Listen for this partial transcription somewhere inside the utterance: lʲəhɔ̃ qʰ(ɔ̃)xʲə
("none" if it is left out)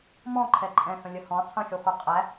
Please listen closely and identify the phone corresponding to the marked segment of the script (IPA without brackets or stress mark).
ə̃